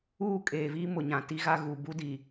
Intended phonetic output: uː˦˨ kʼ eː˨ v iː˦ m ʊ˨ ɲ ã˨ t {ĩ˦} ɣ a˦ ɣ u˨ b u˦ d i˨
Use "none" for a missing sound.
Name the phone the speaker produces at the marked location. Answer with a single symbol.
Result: i˦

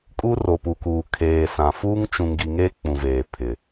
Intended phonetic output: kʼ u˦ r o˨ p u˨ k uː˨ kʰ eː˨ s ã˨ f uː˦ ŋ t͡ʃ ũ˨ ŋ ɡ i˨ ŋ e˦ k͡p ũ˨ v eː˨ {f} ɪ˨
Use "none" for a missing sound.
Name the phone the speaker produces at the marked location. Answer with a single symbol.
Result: pʰ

